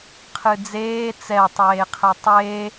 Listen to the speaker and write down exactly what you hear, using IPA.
qʰ ɨ d͡z eː t͡s ɛ tˤ eː qʰ ɛ tˤ eː

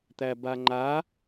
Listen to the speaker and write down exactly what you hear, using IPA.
t̪ æ b a ŋ͡ǃ a

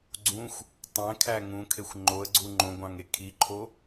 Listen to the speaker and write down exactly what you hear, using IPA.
ɡ͡ǀ ũ xʷ | tˤ æ̃ kʰ æ ŋ ũ kʰ e xʷ ŋ͡ǃ o ə̯ ɡ͡ǀ u ŋ͡ǃ õ ɡʷ ɑ̃ ŋ e kʰ i ǃʰ o

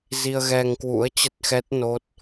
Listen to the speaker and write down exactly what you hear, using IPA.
z i˧ ə̯ ɣ ɛ˧ ŋ k w ṵ˧˥ ə̯ t͡ɕ ə˦˥ t̚ x ɛ˦˥ t̚ n o˦˥ t̚

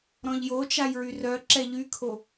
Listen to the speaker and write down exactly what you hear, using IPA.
ɾ ɔ̃ ʎ j o t͡ʃ a j ɹ y r œ ǁ ɛ ʎ y kʰ o

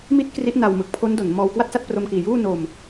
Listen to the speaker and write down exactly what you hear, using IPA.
m i˦˥ t̚ k r i˦˥ ʔ n a˧ w m ɯ˨˩ k̚ pʰ o˦˥ n d o˩˦ n m ɔː˧ w k w a˥˩ t̚ s a˥˩ t̚ p r o˧ m k iː˨˩ j uː˥˩ n o˧ m

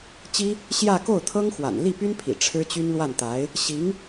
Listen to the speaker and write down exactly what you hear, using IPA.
t͡ɕ i˥ | ɕ j ä˥˧ k o˥˩ ʊ̯ t̪ʰ ɤ˥ ŋ x w a̰˨˩ n l i˥˩ p y˥ n pʰ ḭ˨˩ ʈ͡ʂʰ ɻ̩˥ t͡ɕ y˥ n l w a˥˩ n t̪ a˧˥ ɪ̯ | ɕ i˧˥ ŋ

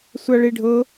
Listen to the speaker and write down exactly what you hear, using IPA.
sʷ a ɭ i ɖʱ ɤ

